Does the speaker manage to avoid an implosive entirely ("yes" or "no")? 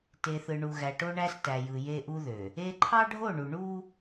yes